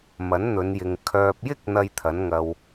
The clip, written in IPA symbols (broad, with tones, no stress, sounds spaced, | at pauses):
m ɐ˨˥ n n̪ ɵ˨˧ n j ɪ˨ ŋ kʰ œː˨ p̚ j ɪ˥ k̚ n̪ ɐ˥ j t̪ʰ ɐ˨˥ n ŋ ɐ˧ w